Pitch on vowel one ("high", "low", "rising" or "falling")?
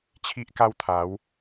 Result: high